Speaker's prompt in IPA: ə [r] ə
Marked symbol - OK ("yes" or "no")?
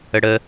no